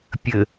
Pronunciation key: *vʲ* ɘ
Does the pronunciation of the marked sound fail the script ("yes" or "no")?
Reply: yes